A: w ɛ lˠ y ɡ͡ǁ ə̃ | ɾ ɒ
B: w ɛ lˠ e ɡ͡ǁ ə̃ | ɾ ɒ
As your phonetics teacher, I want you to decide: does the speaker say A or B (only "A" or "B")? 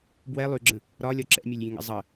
A